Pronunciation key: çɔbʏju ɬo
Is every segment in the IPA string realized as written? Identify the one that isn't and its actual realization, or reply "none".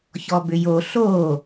u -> o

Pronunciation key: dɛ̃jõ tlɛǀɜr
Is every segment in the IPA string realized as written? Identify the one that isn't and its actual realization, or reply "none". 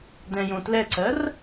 none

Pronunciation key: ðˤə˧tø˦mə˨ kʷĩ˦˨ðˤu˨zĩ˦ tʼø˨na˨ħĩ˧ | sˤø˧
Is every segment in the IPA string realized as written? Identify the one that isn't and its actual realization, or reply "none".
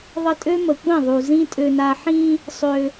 t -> tʼ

